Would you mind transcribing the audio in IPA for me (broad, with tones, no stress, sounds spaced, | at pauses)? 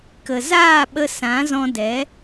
k ə˨ z aː˦˨ ɓ ə˧ s ã˨˦ z ɔ̃˧ d ɛ˨˦